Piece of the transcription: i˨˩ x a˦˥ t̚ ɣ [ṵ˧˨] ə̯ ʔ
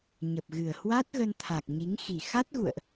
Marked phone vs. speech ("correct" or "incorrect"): correct